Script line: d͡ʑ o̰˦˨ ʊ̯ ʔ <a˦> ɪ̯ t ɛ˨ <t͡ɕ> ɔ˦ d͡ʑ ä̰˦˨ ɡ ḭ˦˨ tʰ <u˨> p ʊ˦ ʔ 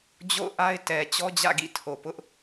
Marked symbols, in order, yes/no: yes, yes, no

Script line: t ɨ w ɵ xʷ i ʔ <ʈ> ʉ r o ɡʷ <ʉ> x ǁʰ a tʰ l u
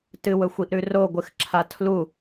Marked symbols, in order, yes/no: no, no

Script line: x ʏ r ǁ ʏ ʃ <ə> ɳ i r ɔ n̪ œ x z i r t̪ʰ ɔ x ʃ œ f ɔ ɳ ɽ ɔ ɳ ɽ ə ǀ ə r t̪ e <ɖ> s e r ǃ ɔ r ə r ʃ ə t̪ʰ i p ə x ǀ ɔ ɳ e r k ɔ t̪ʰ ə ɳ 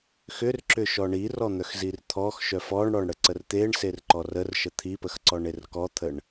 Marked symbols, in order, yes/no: no, no

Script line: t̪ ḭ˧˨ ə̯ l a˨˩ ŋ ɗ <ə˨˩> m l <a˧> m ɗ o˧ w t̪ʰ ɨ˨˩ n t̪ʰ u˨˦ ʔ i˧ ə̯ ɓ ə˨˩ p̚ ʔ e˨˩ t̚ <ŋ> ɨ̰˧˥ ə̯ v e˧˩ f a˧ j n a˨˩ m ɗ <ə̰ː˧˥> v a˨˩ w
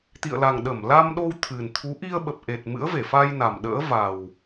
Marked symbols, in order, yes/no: no, yes, no, yes

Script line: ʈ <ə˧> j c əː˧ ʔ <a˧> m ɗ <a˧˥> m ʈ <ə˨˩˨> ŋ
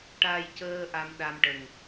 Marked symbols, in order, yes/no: no, yes, no, no

